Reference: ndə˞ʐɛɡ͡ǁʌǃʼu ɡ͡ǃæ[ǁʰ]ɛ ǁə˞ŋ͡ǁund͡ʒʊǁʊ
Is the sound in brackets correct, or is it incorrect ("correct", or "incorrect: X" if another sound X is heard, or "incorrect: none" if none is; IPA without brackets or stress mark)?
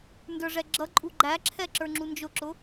correct